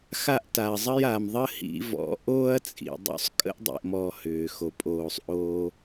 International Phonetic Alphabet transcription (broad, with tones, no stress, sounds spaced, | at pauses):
x a˧ ʔ t a˨ ɐ̯ zˤ ə˧ j a˨ m ðˤ ə˦ h ḭ˧ v ɔ̰˨˦ ʔ oː˦ ɐ̯ t͡sʼ ḭ˨ dˤ o̰˧ sˤ kʼ ə̰˦ ʔ dˤ ḭ˨ ʔ m ɔː˨ h ʏː˨ x o˨ pʼ oː˨ sˤ ʔ oː˧